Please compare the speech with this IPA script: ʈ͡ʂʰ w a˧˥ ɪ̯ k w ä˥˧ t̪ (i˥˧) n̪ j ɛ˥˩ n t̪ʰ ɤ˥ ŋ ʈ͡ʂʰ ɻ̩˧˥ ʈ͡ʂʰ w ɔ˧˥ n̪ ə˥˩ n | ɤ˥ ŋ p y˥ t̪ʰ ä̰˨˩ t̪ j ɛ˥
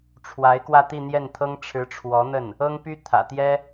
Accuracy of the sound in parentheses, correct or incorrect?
correct